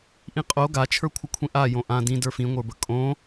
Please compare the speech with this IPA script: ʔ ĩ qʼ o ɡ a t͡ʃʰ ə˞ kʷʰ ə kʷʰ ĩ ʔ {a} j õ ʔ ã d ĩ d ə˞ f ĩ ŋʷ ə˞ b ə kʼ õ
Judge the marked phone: correct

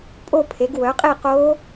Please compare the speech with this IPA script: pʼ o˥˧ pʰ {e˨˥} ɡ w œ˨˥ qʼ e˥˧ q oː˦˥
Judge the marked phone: correct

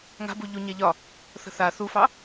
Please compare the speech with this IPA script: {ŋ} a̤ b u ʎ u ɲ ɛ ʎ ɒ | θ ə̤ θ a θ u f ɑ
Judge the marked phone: correct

